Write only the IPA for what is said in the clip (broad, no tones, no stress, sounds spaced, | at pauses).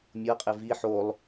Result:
mʲ ɤ qʼ e v i ħ o lˠ